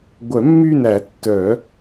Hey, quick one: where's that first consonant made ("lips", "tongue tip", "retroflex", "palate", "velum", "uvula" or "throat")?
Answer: velum